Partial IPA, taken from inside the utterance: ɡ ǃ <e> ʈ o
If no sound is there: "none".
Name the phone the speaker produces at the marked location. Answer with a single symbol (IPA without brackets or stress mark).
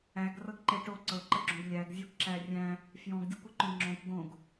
e